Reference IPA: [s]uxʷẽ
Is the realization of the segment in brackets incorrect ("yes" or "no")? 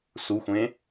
no